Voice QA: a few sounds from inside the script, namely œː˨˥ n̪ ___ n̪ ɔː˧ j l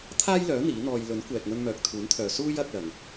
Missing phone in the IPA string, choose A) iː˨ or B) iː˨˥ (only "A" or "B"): B